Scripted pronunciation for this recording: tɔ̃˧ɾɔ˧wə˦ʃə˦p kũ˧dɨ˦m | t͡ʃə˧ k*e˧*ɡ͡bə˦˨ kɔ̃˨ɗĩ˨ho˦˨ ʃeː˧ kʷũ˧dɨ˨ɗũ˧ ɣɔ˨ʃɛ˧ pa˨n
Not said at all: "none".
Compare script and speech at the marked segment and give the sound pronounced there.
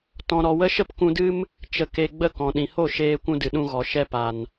e˧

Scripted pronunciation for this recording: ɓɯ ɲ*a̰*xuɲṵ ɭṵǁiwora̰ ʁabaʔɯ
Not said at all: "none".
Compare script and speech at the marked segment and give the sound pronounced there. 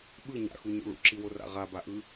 a̰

